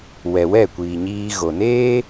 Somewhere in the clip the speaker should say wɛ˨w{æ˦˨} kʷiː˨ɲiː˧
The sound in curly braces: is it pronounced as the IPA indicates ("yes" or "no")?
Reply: no